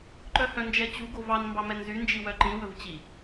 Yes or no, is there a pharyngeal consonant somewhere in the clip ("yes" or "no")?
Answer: no